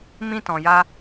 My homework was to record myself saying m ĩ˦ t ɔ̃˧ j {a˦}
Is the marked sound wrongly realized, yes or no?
no